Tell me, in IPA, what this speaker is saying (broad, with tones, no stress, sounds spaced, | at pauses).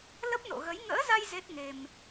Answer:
l ə˦˥ p̚ n o̰˧˨ ɣ ə˨˦ j ŋ ə̰ː˧˥ z a˧ j z e˦˥ t̚ ŋ e˧ m